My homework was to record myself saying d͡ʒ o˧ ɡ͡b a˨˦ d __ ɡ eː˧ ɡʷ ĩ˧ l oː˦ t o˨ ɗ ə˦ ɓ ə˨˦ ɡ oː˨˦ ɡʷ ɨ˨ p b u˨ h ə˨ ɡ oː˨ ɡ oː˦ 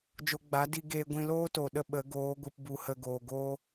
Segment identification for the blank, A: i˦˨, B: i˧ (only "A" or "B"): B